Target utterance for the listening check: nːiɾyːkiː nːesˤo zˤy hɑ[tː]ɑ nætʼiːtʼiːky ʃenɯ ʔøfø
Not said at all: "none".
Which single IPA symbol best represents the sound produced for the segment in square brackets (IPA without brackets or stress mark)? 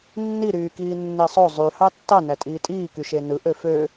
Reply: tː